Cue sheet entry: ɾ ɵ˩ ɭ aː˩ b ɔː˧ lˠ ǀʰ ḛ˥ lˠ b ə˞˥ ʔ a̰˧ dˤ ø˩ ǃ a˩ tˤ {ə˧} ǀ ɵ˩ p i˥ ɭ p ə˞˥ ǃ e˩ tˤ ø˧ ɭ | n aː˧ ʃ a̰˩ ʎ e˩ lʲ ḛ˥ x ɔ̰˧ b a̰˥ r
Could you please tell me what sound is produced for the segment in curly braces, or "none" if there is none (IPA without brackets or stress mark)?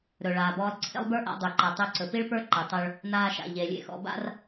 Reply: ø˧